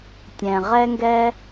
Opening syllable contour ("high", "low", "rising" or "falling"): low